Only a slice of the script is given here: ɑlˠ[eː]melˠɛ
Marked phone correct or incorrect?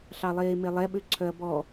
correct